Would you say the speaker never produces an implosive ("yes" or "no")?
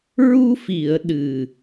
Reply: no